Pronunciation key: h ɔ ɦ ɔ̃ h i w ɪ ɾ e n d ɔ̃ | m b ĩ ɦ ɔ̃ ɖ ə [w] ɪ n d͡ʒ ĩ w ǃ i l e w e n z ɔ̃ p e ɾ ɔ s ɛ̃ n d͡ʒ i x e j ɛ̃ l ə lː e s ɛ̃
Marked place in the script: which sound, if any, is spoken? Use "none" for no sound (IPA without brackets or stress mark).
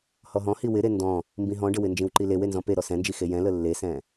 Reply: w